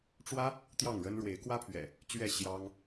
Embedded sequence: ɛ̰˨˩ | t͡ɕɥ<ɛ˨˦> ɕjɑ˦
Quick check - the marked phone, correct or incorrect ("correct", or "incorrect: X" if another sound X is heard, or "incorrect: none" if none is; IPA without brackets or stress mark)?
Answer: incorrect: ɛ˥˨